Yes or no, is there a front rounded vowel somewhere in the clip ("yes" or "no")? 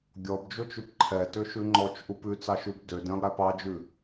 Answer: yes